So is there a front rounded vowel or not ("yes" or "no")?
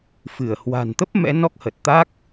no